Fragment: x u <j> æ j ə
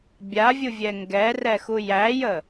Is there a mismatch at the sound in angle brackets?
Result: no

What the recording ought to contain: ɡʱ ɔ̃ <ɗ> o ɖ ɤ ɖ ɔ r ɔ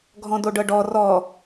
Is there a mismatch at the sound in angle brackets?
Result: yes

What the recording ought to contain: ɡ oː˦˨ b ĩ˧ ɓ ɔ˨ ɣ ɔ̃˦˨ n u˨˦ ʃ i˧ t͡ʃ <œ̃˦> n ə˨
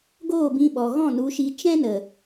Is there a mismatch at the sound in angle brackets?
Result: yes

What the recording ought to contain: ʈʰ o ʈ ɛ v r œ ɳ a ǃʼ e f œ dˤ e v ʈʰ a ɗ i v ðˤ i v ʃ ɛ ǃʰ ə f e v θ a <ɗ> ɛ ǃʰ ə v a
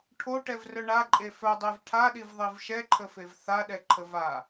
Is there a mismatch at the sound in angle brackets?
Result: no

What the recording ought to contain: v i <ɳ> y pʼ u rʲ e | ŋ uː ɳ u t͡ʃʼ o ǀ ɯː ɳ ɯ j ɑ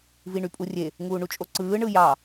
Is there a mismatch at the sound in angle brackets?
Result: no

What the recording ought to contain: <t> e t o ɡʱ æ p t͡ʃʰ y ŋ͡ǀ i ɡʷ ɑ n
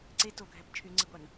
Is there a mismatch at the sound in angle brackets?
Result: yes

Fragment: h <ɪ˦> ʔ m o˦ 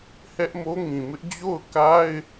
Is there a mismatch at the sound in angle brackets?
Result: yes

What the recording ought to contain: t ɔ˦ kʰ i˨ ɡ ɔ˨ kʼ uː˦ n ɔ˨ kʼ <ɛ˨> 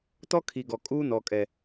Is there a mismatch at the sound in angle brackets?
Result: no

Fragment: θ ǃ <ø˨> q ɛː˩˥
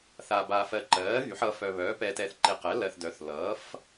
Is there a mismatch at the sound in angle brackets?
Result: yes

